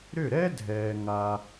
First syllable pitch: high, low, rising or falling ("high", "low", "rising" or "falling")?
falling